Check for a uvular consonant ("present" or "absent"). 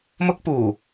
absent